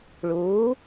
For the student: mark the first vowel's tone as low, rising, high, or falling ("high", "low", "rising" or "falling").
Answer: rising